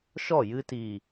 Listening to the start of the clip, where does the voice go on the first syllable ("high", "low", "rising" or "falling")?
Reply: falling